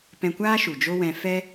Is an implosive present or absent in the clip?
absent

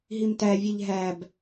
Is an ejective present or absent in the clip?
absent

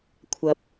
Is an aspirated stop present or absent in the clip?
present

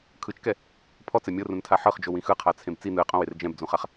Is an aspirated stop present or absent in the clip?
present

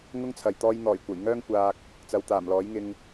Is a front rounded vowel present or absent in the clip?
present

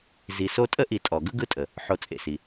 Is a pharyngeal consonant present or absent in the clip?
present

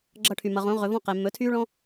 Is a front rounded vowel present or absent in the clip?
present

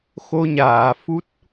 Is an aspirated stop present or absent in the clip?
absent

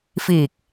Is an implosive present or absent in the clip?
absent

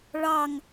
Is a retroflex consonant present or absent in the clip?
present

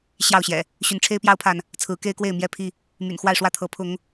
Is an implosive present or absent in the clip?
absent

